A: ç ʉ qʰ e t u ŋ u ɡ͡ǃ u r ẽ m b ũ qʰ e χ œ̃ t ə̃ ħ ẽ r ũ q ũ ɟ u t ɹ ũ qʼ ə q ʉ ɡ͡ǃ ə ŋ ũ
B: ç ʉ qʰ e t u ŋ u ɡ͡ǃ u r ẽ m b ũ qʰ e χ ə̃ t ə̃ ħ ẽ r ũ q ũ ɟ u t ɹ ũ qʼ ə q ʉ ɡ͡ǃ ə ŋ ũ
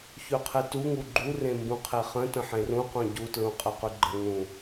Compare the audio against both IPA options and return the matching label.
B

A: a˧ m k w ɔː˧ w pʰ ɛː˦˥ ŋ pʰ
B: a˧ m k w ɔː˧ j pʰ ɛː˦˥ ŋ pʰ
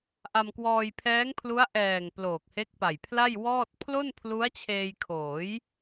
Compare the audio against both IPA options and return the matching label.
B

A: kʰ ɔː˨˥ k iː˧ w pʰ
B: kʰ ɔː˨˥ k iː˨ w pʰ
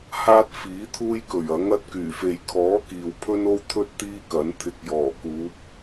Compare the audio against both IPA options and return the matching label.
B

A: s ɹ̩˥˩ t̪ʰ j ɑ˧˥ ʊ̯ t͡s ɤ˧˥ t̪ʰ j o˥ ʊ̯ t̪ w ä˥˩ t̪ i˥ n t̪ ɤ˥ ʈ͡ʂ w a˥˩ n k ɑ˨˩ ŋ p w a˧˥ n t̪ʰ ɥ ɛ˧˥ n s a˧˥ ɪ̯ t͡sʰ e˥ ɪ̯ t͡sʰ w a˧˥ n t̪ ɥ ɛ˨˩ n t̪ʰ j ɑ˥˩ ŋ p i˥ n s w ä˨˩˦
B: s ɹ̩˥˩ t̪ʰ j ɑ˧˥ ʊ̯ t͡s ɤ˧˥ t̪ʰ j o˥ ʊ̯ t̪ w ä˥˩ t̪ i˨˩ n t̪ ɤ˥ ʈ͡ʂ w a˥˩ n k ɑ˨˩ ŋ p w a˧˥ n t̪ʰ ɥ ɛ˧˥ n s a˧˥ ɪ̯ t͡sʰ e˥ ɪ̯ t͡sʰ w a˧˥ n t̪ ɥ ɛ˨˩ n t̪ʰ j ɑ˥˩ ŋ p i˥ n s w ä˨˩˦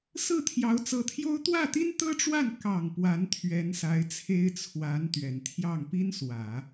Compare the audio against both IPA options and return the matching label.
A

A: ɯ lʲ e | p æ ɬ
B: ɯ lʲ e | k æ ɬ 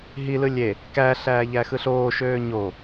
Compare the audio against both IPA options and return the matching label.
B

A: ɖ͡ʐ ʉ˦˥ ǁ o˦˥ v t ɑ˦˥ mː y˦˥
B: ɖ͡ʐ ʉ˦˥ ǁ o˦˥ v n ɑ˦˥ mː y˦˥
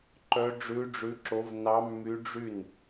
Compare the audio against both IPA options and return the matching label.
B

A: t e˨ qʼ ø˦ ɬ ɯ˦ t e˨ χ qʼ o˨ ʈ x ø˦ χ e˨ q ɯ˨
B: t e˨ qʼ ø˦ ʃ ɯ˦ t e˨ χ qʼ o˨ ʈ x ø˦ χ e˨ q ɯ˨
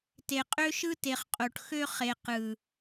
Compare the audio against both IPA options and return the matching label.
B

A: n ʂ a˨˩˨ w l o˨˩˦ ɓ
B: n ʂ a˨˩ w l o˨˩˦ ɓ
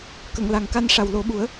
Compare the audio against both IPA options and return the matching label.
B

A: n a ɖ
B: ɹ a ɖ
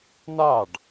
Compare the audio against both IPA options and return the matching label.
A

